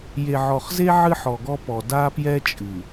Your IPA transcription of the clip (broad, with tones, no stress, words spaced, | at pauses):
je˨ʕɔ˨χze˦ ʕɨ˦ħɔ˨ɡɔ˦pɔ˨ da˦pjɛ˦t͡ʃʼɨ˨